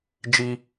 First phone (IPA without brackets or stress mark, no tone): d͡ʒ